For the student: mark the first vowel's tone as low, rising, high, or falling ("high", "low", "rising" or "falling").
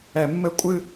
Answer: high